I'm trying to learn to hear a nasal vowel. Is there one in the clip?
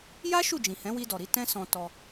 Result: yes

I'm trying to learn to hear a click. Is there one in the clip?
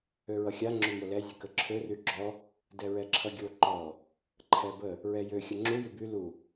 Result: yes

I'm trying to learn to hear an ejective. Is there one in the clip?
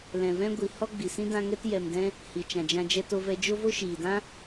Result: no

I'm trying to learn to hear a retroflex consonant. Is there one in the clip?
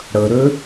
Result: yes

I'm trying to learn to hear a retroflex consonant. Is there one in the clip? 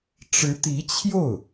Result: yes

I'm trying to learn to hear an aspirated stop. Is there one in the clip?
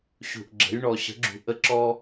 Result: no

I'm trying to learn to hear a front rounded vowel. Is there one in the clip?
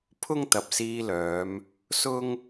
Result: yes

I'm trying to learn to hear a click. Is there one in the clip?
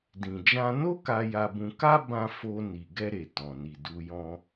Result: no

